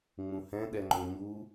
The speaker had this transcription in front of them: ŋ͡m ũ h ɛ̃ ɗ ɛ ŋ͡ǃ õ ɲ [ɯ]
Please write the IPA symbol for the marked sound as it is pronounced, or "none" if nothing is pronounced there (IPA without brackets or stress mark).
u